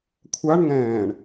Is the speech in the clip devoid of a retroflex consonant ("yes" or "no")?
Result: no